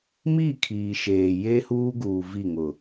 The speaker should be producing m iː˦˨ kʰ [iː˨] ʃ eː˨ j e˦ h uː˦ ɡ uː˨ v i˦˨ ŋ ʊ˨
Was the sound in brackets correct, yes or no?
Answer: yes